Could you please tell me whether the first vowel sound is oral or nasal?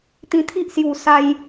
nasal